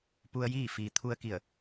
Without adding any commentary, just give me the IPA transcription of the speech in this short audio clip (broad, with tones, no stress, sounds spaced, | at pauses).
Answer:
p u˧ ə̯ j iː˥˨ f iː˩ t̪ʰ u˧ ə̯ k i˧˩ ə̯